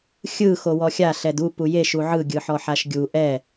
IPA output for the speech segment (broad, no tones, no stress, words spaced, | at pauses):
xʲɯ xowɔxʲa ɬɛdu pujeʃ uʕɯ ɡʲɯħɔħaʃɡʲu ʔɛ